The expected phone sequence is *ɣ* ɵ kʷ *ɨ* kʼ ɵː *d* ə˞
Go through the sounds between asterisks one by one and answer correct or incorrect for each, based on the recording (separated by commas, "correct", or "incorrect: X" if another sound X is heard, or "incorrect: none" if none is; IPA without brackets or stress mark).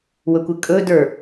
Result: incorrect: w, correct, correct